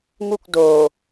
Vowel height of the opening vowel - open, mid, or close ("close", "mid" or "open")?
close